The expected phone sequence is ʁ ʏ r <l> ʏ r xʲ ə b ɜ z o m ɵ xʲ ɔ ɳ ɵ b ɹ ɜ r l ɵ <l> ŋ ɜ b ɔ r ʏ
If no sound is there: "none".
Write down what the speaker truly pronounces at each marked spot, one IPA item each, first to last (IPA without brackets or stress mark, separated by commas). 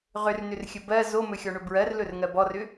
n, r